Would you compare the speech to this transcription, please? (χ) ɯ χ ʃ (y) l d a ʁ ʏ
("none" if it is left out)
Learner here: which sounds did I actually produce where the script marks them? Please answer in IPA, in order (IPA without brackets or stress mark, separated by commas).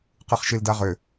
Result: q, i